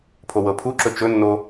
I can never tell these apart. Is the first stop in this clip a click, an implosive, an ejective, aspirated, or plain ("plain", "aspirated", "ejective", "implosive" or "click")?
aspirated